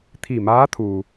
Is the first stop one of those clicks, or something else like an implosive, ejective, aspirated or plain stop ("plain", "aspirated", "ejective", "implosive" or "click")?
aspirated